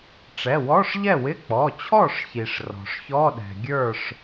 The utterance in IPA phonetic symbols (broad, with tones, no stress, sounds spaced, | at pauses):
ʈ͡ʂ ɛ˩˧˩ w ɔ˧˥˧ ʂ ʎ ɛ˥˩ w ɪ˧˥˧ k͡p ɔ˩˧˩ t͡ɕʰ ɔ˥˩ ʂ ç i˩ ʂ r ɔ̤˩ ʂ ç ɔ˧˥˧ ɗ ɛ̤˩ ɡʲ ə˞˥˩ ʂ